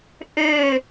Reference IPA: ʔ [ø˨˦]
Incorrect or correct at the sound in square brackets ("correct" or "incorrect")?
incorrect